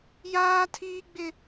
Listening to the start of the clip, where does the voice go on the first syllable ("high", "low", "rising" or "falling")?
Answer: high